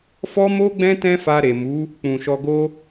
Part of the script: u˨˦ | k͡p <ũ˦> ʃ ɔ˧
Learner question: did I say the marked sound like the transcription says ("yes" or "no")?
no